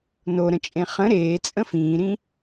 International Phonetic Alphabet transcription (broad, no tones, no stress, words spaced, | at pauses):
noɾə̃t͡ʃʼẽ χə̃ ɾeːt͡sʼə̃ fĩːɾĩ